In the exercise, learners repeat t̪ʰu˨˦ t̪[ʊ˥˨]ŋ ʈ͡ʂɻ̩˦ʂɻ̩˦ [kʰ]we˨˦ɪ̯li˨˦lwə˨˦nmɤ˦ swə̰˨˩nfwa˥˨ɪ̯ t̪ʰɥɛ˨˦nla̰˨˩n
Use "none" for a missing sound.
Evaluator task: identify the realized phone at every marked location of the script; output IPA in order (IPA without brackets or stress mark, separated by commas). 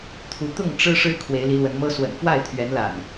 ʊ˥˨, kʰ